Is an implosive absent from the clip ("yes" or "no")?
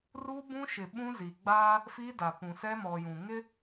no